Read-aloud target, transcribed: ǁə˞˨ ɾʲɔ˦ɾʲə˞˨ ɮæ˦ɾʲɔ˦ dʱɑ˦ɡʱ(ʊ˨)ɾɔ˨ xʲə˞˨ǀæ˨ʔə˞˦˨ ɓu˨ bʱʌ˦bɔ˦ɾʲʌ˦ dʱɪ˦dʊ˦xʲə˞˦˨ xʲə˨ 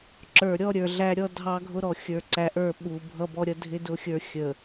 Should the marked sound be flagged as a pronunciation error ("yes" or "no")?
yes